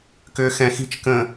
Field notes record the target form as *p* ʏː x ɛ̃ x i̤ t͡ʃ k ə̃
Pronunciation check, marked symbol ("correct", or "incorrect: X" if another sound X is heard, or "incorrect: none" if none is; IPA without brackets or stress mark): incorrect: k